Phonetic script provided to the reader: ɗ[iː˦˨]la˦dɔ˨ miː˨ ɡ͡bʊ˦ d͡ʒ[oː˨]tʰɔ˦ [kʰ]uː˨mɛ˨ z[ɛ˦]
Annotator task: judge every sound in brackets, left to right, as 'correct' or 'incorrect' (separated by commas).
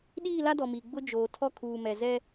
correct, correct, correct, correct